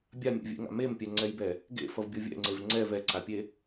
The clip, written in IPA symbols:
bʲ a mʲ ḛ vʲ ḛ ŋ a̰ m e m pʲ ɛ ŋ͡ǀ ɛ j b ɛ | ɡ ḛ f ʌ v bʲ o vʲ ɛ̰ ŋ͡ǀ e v ŋ͡ǀ ɛ v ɛ ǀ a pʲ e

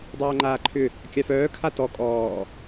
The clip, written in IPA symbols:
dˤ œː ŋ͡ǃ aː ǃʰ ʏ | kʲ a f œː kʰ a t ɔ kʼ ɔː

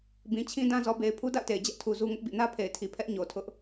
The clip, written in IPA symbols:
b ĩ˨ t͡ɕʰ ĩ˦ d ã˦ z ɔ˨ b e˨ ɪ̯ pʰ u˦ d a̰˦˨ ʊ̯ t e˨ ɪ̯ d͡ʑ ɛ˦ ʔ tʰ u˨ z u˦ ŋ ʊ˦ ʔ b ḭ˦˨ n ä˦ pʰ e˨ ɪ̯ tʰ i˨ pʰ ɛ˦ ʔ ɲ o˨ tʰ ʊ˦ ʔ

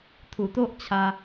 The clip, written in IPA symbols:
t̪ʰ u˨˩ t̪ o˦ ʔ t͡ɕʰ a˧

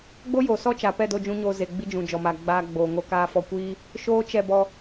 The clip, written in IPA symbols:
ɡ͡b o˦ j oː˨ s ɔ˦ t͡ʃ aː˨ p ɛ˦˨ d o˧ d͡ʒ ũ˧ ɲ oː˧ z e˨ ɡ͡b i˧ d͡ʒ ũ˨ d͡ʒ ɔ˨ m aː˨ ɡ͡b aː˧ ɡ͡b oː˨ ŋ o˧ k aː˧ f ɔ˧ kʷ iː˦ | ʃ oː˦ t͡ʃ ɛ˦˨ b ɔ˧

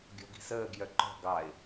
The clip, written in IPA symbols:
ɡʲ ɔ̤ ɡ i̤ s əː ɡ j œ ǃ ɔ̤ ɡ ɑ ɪ̯

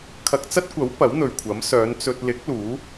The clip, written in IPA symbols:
kʰ ɐ˥ k̚ t͡s ɐ˥ t̚ kʷ ɐ˨˥ w p ɐ˨˥ w n̪ ɵ˨ ɥ kʷʰ ɐ˨˥ m s œː˨˧ n t͡s ɵ˧ t̚ l ɪ˨˥ k̚ l uː˨˥

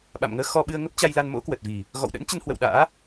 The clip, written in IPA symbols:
ɓ a̰˧˨ m ŋ əː˧ x ɔ˧ ɓ ɨ˧ ə̯ ŋ ə˦˥ p̚ t͡ɕ a˧ j l a˧ n m o̰˧˥ k w ə˨˩ t̚ v i˨˩ | ɣ ɔ̰˧˨ w ɗ ə̰˧˥ n t͡ɕ ə˧ n h w ə̰˧˨ w ɗ a̰ː˧˥

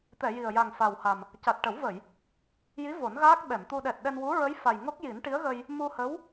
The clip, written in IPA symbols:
t̪ ɛ˨˩˨ j i˨˩ ə̯ j a˨˩ ŋ f a˨˩ w h a˨˩ m | c a˨˩ t̚ ʈ ə˨˩˦ w v ə˨˩˨ j | j i˧˥ v o˨˩˦ n ɣ aː˦˥ k̚ ɓ ɛ˨˩˨ m t̪ u˧ ɗ ɛ˨˩ t̚ ɗ ɛ˧ n w u˧˥ ɹ ə˧˥ j f a˨˩ j ŋ o˦˥ k̚ j i˨˩˦ n ʈ i˧˥ ə̯ ɣ ə˧ j | m u˧ h ə˧˥ w

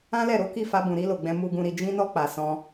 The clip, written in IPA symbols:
ã˦ l ɛ˦˨ ɾ o˨˦ k i˦˨ f a˧ b ũ˨ ɾ i˧ l o˨ ɡ͡b ɛ̃˧ m u˨ ɡ ũ˨ ɾ i˨ d͡ʒ ĩ˧ n ɔ˧ k͡p a˨ s ɔ̃˧

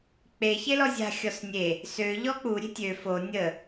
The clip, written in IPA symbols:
k͡p e ç e l ɔ zʲ a̤ xʲ ɔ s nʲ e | s ø ʎ ɔ k͡p u ɾʲ e̤ tʲ ø f o nʲ ə

